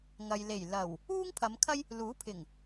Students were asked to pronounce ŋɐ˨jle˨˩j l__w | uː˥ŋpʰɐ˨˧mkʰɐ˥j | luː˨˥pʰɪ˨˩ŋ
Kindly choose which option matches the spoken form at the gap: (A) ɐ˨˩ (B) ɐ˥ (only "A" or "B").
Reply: A